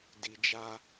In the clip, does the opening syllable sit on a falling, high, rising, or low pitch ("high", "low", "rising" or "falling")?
low